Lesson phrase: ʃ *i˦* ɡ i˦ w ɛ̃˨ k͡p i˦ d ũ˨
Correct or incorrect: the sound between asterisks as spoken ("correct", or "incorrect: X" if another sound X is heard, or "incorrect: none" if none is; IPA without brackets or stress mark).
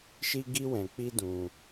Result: correct